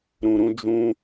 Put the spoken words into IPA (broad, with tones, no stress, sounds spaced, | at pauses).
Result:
ɾ ũ˧ ɾ ũ˦ d͡ʒ ũ˦